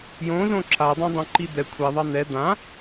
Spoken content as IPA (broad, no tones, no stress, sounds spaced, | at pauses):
j õ z õ ǁ a dˤ ɛ̃ dˤ õ ǃ i d̪ ɛ kʷʰ ɛ ðˤ ɑ n̪ ɛ d̪ ã